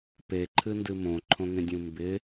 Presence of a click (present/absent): present